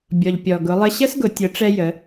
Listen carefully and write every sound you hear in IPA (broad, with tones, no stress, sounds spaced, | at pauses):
bʲ ɔ˩ ʎ pʲ ɔ˩ ɡ ʊ˩˧ lˠ ə˧ ɕ ə˥ s ɡ ʊ˩˧ tʲ ʊ˩˧ ʈ͡ʂ ɛ˧ j ə˩˧